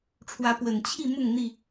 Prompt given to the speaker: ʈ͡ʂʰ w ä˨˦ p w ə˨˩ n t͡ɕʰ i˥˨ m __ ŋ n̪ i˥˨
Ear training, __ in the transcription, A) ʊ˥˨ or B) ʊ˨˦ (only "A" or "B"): A